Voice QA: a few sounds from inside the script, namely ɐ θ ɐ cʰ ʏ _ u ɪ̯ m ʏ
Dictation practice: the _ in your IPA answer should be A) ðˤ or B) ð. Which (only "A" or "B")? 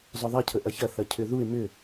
B